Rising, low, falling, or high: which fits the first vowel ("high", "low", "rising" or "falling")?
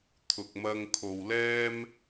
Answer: low